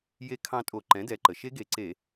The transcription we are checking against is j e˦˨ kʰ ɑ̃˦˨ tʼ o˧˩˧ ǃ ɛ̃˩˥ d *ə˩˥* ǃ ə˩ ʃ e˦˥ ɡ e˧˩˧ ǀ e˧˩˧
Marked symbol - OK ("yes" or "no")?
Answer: no